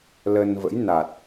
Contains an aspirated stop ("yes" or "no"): no